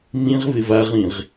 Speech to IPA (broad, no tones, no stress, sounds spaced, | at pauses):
m ĩ ʁ v ɪ v a ʁ ĩ ʁ